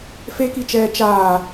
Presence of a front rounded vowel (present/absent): absent